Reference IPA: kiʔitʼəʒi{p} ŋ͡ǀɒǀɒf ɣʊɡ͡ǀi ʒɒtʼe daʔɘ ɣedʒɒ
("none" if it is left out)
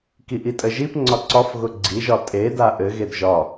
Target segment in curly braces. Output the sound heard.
p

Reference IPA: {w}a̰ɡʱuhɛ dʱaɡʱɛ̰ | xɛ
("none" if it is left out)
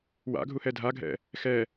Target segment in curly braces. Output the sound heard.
w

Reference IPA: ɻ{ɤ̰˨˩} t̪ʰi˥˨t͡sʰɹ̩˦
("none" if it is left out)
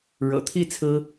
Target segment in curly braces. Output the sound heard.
ɤ̰˨˩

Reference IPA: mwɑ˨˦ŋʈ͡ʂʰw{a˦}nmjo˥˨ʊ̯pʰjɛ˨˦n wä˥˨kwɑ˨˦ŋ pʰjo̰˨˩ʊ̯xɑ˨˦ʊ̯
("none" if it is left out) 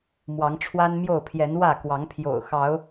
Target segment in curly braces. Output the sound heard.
a˦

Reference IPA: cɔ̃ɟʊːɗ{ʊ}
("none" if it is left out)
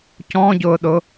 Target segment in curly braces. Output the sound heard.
ʊ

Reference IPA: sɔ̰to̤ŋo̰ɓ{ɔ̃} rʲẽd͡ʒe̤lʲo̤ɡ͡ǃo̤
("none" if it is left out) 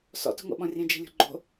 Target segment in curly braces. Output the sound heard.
ɔ̃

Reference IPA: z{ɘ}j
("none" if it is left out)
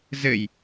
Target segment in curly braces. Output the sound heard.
ɘ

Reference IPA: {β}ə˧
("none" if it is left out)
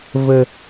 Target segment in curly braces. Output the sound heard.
v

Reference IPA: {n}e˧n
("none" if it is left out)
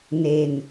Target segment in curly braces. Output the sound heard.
n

